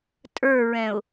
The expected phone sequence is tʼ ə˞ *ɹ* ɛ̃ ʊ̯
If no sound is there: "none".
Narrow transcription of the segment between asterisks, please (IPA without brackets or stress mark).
ɹ